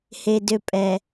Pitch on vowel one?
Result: low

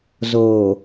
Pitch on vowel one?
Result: low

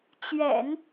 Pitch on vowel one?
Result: low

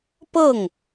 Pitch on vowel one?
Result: falling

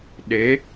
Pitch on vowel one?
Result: rising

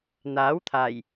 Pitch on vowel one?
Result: rising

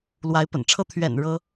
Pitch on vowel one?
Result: rising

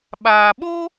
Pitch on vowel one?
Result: low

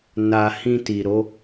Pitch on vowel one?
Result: low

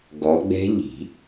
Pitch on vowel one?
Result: rising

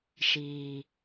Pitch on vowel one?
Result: low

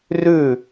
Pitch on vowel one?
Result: falling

